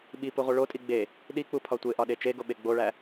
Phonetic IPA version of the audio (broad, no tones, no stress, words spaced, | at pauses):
ɓipu ʁʷiɭotʼi ɡ͡be | ɗik͡pu pʰɒtʷeʔɒ ɗet͡ʃeɡo ɓeɡ͡boɭæ